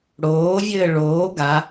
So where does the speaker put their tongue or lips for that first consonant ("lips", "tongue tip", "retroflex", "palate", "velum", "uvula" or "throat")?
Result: retroflex